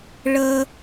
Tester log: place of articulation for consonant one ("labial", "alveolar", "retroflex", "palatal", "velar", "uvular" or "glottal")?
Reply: retroflex